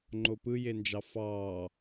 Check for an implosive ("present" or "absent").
absent